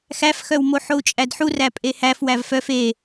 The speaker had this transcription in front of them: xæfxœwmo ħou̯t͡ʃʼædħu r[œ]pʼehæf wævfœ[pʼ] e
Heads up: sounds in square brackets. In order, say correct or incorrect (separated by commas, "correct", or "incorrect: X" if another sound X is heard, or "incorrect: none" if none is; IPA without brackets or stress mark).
incorrect: æ, incorrect: f